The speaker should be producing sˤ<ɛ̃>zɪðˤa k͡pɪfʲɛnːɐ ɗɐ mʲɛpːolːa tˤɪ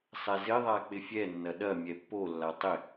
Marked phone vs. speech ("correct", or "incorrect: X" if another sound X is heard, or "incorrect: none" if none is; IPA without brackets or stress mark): incorrect: ɛ